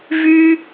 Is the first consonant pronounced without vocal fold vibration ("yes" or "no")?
no